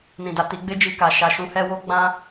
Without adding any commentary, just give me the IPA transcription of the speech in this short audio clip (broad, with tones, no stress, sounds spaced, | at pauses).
n ĩ˨ d a˨ t i˨˦ ɡ͡b e˦ d͡ʒ i˧ k a˨ ʃ a˨ ʃ ũ˨˦ h ɛ˧ w o˦ ɡ͡b ã˦